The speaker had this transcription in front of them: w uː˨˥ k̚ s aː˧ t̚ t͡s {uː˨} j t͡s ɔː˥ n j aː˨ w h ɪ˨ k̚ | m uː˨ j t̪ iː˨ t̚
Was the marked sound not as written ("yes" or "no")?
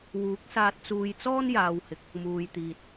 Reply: yes